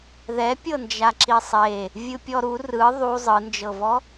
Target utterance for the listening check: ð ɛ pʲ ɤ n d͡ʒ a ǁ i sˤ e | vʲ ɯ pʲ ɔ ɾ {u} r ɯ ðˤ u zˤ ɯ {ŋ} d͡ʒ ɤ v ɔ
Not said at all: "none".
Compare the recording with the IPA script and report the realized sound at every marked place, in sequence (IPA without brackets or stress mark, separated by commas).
u, n